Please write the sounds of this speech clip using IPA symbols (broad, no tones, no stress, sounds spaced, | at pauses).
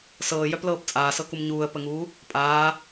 s ɤː j œ p l ɤː p t͡sʼ aː s ɤ k u m ɲ uː ə̯ p ə ŋ uː | pʼ aː